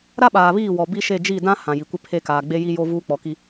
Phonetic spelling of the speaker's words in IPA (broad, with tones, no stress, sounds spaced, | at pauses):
ɾ a˦ ɓ aː˨ β iː˦˨ w ɔ˨ b i˦ ʃ e˦˨ d͡ʒ i˦˨ d ã˦ h ã˨ j i˨ kʷ ɪ˦ pʰ e˦ k aː˨ ɡ͡b e˦ j i˦ j o˦ v uː˦ k͡p ɔ˨ k i˦